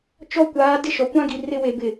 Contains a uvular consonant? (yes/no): no